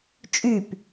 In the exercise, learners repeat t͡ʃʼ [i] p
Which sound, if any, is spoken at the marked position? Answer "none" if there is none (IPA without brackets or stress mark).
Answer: y